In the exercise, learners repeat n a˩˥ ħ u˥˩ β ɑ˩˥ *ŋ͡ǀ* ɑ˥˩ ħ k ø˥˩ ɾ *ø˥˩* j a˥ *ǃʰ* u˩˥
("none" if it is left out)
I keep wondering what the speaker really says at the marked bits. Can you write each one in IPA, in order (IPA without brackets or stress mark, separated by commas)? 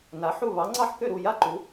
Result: ŋ͡ǀ, u˥˩, ǃ